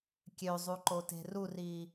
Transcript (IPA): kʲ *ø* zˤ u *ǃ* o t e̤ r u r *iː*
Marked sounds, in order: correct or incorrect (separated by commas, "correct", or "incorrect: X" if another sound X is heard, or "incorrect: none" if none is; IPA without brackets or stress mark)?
correct, correct, correct